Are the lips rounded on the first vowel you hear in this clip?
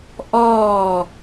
yes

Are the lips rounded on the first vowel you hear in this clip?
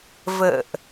no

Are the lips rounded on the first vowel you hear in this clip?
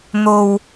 yes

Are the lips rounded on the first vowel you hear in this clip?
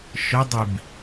yes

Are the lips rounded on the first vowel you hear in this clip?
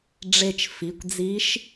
no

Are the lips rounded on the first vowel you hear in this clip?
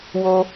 yes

